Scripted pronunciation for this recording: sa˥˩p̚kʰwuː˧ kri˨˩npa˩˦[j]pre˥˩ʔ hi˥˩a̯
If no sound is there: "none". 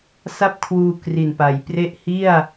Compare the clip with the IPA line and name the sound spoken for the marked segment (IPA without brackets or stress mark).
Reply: j